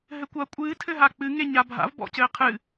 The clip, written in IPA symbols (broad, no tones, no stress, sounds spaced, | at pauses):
ɦ ɘ kʷ ɐ kʷʼ ɨː tʰ ɘ ɦ a k͡p ɨ ŋ e ɲ a bʱ a̰ v b ɔ̰ c ɘː qʰ ɨ